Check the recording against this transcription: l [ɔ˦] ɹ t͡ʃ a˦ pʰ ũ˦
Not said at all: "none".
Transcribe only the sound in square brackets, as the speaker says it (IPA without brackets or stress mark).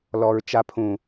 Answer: ɔ˦